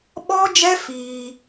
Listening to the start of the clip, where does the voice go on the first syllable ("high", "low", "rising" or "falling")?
high